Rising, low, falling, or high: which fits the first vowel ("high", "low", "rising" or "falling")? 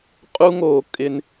high